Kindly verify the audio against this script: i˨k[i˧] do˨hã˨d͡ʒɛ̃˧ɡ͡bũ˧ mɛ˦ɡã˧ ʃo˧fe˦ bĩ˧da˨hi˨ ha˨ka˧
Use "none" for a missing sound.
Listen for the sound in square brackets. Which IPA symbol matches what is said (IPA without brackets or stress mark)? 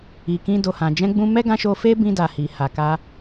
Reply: ĩ˧